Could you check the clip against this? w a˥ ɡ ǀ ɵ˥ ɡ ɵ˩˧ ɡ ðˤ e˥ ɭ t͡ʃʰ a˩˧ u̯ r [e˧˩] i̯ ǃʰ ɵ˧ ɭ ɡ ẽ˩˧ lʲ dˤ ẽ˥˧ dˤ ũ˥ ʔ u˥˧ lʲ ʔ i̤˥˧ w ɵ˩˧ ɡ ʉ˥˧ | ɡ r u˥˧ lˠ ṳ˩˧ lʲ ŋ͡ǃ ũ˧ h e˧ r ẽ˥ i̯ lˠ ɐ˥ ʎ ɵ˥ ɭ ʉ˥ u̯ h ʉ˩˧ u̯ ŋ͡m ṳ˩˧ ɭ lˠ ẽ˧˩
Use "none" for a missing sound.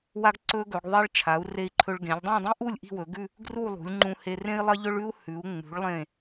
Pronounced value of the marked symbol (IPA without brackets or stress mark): e˧˩